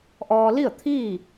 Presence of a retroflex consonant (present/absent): absent